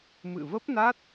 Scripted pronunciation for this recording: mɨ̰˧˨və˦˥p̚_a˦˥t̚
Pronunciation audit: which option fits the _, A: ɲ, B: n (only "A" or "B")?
B